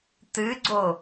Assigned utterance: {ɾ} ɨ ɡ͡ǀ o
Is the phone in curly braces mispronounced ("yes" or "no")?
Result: yes